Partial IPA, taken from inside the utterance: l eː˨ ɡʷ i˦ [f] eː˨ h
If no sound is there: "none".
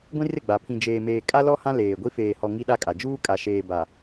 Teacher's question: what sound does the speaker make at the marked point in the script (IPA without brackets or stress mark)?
f